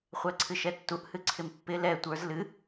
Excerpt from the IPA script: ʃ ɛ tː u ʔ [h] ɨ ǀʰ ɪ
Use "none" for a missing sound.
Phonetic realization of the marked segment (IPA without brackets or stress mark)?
h